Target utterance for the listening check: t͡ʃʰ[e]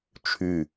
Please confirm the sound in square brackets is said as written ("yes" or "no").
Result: no